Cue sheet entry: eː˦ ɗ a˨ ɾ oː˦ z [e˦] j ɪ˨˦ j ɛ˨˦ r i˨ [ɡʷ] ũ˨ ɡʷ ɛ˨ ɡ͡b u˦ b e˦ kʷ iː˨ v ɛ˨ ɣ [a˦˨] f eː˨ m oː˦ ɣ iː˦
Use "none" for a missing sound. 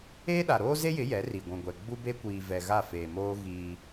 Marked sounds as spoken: e˦, ɡʷ, a˦˨

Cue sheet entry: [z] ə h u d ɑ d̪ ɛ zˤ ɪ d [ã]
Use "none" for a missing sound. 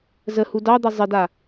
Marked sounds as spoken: z, a

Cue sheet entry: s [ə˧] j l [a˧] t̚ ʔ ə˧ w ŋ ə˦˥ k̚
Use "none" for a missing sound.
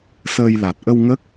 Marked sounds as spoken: əː˧, a˨˩

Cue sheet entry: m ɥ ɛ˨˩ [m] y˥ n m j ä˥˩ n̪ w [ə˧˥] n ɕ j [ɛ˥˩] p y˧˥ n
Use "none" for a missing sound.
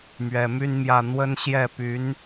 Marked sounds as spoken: m, ə˥, ɛ˥˩

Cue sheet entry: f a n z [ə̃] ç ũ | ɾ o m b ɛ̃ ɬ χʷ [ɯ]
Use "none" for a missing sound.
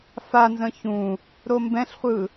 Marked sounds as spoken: ə̃, ɯ

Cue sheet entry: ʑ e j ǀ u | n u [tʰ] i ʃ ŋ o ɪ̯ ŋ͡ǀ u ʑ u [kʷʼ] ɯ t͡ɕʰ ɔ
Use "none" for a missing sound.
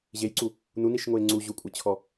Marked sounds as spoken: n, kʷʼ

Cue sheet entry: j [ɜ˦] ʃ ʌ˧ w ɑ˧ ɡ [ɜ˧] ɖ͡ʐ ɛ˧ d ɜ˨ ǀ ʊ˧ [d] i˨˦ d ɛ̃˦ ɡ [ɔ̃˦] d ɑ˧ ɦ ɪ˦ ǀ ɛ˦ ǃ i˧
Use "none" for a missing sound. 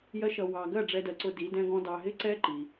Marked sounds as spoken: ɜ˦, ɜ˦˨, d, ɔ̃˦

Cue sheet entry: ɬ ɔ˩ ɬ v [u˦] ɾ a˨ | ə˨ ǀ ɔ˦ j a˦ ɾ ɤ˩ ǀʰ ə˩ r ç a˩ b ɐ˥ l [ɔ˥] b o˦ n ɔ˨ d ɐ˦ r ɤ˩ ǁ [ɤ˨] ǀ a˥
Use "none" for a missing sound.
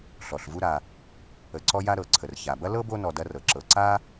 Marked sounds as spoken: u˦, ɤ˥, ɤ˨

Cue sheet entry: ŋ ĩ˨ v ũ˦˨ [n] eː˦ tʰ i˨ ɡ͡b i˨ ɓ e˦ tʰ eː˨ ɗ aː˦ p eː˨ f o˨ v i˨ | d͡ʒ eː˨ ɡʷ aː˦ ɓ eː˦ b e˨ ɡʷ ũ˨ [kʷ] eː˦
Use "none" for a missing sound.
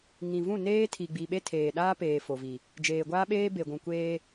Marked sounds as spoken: n, kʷ

